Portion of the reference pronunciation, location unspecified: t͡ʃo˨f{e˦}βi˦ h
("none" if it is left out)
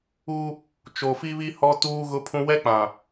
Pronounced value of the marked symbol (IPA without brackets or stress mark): i˦